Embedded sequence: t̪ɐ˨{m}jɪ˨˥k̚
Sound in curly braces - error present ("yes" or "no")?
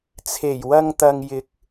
yes